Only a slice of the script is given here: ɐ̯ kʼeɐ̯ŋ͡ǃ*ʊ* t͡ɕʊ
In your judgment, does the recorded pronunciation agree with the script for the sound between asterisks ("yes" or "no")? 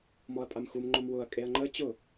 no